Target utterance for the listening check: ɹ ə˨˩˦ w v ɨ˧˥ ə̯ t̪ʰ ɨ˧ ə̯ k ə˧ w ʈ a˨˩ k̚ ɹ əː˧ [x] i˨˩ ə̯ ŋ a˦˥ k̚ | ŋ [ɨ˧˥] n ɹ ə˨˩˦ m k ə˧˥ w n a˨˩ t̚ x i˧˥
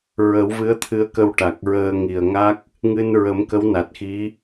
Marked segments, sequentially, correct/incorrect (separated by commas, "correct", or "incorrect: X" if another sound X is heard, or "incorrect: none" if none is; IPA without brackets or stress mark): incorrect: ŋ, incorrect: ɨ˧